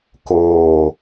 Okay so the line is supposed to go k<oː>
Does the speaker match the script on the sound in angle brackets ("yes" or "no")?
yes